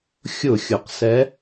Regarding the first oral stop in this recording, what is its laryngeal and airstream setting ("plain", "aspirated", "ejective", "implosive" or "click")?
plain